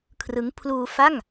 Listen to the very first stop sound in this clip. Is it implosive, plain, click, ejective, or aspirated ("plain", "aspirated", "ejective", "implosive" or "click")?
aspirated